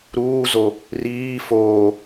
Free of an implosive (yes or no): yes